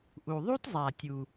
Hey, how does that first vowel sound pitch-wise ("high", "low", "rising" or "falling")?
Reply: low